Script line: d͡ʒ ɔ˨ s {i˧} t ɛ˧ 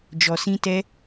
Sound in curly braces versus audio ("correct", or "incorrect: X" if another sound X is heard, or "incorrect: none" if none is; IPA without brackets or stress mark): incorrect: ĩ˧